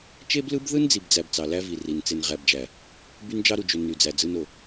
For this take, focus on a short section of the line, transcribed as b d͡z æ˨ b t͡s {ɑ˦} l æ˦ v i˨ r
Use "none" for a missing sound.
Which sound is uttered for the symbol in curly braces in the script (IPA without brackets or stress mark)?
ɑ˨